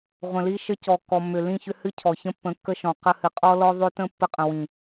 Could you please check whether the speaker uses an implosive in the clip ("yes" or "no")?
no